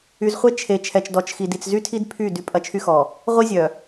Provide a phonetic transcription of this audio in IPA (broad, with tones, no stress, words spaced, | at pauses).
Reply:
y˨z χʷe˦ t͡ʃʰe˨ t͡ʃʰɛ˨t͡ʃdɔ˨t͡ʃxi˨ di˨t͡szy˦tʰi˦d pʰy˦˨ dy˦ pʼɐ˦t͡ʃʰy˦xɔ˨ | ʁʷi˦zʲœ˨